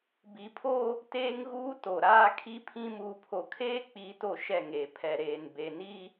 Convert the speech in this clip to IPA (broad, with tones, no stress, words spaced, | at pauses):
bi˨˦pʰo˦ | teː˦ŋɣuː˦to˨ɾaː˦ kʰi˦pʰĩ˦ muː˨pʰo˨kʰeː˦ k͡pi˨˦ to˦˨ʃɛ˦˨ŋeː˨ pʰɛ˨ɾeː˨n be˨ ni˦